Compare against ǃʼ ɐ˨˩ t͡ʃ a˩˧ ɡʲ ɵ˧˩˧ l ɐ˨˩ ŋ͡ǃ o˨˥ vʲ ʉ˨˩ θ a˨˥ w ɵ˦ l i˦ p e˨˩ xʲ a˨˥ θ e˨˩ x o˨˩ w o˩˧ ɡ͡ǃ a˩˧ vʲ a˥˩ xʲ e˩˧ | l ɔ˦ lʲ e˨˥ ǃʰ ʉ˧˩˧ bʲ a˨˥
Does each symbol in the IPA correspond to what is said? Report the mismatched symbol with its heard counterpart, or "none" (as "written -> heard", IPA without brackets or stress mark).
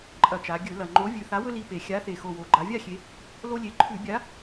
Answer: ɔ˦ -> o˦